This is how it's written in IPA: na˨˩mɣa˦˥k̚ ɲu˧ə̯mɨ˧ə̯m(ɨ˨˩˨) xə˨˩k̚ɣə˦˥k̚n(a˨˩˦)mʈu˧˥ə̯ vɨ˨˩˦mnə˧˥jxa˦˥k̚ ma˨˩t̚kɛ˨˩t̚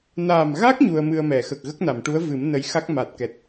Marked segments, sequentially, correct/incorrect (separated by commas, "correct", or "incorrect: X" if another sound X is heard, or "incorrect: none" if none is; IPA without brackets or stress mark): incorrect: ɛ˨˩˨, incorrect: a˨˩˨